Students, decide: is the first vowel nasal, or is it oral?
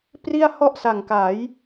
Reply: oral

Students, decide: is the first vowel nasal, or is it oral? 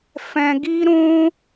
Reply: nasal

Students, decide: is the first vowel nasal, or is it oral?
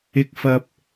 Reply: oral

